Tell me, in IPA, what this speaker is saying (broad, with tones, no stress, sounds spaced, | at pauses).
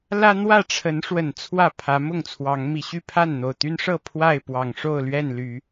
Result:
l ä˦ n̪ w ä˥˨ ʈ͡ʂʰ ə˨˦ n ʂ w ə˨˩ n t͡sʰ w ä˥˨ pʰ ä˨˦ m ʊ˥˨ ŋ t͡sʰ w ɑ˨˦ ŋ m i˨˩ ɕ y˥˨ pʰ a˥˨ n n̪ o˨˩ ʊ̯ t̪ y˦ n ʂ ɤ˥˨ pʰ w a˥˨ ɪ̯ p w ɑ˨˩ ŋ ʂ o˥˨ ʊ̯ l ɥ ɛ˥˨ n l y˨˦